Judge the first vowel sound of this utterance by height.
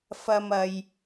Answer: low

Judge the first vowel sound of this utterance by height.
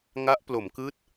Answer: low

